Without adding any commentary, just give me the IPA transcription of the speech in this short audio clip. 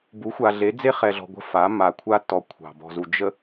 bu˨˦xʷa˨ɮe˨˦ d͡ze˦χɛ˨ɮɔ̤˨ ɡʷə̤˦ fa˨˦ ma˨kʷʰa˦tːɔ˨ kʷʰɑ̤˨bɔ̤˨zu˨ d͡ʒə˨

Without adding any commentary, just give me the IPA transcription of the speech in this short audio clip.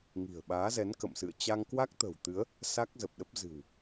ŋi̤˨˩ə̯ɓaː˨˦zɛ˨˦n kə̰˧˨msɨ̰˧˨ə̯ t͡ɕa˧ŋkwa˦˥k̚t̪ə̤˨˩wt̪ɨ˨˦ə̯ | sa˦˥k̚zə˨˩p̚ɗə˦˥p̚ zɨ̤˨˩w

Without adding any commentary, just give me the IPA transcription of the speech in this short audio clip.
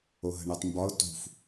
oɦə̤ɳɨtˤmbɒʊ̯ tṳf

